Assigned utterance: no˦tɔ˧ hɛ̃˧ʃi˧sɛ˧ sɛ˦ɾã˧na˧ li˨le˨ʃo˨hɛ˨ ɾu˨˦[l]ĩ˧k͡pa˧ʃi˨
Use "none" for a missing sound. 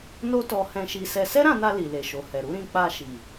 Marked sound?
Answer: ɾ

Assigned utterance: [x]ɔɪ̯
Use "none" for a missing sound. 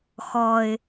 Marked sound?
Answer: x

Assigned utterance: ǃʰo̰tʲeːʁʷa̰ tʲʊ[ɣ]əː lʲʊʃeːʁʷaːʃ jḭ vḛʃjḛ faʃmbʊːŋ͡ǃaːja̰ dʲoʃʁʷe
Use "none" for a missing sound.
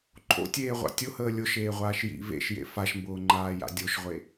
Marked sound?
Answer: h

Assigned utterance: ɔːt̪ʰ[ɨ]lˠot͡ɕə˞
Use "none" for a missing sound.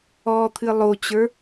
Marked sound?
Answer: ɨ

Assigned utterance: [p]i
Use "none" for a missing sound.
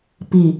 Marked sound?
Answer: p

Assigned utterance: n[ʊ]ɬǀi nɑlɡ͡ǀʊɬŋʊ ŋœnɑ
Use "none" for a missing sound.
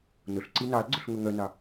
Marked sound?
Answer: ʊ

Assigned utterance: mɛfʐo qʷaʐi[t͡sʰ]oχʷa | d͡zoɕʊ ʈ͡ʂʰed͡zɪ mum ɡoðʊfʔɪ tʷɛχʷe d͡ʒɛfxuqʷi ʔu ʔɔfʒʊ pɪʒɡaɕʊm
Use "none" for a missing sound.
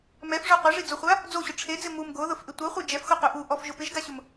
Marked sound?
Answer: d͡z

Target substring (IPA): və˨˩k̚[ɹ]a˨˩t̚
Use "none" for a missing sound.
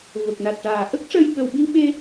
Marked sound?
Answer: n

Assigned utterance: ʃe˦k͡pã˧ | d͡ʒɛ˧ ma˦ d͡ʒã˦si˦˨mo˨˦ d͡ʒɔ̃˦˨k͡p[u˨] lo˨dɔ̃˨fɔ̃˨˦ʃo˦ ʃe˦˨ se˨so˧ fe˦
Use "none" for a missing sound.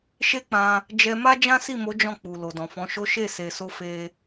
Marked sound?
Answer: u˨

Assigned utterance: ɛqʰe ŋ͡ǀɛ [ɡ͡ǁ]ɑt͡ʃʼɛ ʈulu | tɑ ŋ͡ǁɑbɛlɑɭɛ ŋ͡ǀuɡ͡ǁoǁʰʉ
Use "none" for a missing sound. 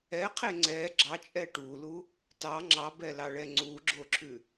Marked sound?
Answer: ɡ͡ǁ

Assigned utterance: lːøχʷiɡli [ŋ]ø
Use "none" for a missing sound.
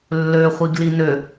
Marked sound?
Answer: n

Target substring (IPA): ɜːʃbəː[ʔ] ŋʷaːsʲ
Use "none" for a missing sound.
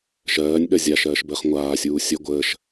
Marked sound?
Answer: χ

